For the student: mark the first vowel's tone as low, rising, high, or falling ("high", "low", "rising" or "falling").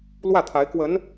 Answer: falling